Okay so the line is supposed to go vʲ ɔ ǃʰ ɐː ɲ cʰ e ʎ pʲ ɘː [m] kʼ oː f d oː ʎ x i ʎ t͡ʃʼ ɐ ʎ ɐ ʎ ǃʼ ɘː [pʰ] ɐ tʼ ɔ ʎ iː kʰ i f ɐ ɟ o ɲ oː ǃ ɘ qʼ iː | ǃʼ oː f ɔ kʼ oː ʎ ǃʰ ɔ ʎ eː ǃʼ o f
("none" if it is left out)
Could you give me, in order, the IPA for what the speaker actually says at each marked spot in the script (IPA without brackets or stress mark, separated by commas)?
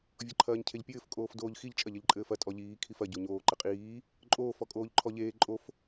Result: f, f